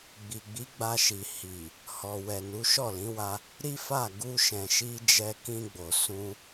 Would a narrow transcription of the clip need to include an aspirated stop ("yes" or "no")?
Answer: no